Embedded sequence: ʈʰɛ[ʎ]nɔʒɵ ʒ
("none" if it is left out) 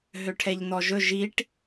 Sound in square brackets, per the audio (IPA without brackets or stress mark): ʎ